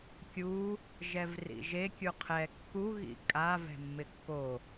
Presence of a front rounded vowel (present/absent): absent